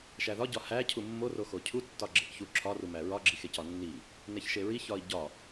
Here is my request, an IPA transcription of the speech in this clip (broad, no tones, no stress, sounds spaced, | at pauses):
ʃ æ ð ɒ ɟ ɒ h æ cʰ u mː o r o x o cʰ u tː ɒ ɡ͡ǁ e ʔ ç u ǁʰ ɒ r u m æ ɹ ɒ ɡ͡ǁ i x e c ɒ nː i | n e ç ʃ e ɹ i ç ɒ i̯ ɟ ɒ